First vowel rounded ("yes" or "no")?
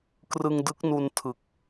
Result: no